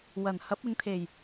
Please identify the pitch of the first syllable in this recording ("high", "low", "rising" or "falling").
low